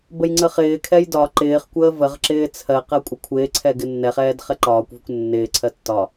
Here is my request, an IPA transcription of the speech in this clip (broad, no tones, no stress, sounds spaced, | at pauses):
b ə j ŋ͡ǀ ə χ ɪː kʰ ɛ j d ɒ ǃ ɪː χ kʷ əː v ə ʁ ǁ ɪː t͡sʰ ɜ q ɜ kʷʼ ɪ kʷʰ ɪː ǀʰ ɛ ɡ ɪ nː ɛ χ ɛː d χ ɛ ǃ ɒː kʷ v ʊ kʷ nː ɪː ǀʰ ɜ tː ɒ